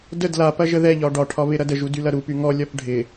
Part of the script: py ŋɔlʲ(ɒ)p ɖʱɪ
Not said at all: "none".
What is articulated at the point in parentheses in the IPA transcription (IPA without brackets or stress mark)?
ɒ